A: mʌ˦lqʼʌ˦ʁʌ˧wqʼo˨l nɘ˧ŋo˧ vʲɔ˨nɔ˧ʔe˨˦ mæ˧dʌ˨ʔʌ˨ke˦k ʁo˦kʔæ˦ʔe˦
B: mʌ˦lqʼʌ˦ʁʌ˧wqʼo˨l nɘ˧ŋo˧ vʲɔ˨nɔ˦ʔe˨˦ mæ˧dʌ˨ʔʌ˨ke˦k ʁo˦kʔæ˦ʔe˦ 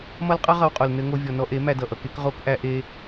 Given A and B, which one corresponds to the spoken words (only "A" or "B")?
A